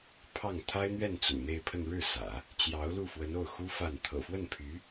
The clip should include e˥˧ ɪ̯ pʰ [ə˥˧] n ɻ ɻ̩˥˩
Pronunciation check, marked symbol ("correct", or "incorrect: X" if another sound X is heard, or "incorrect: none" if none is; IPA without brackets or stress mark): correct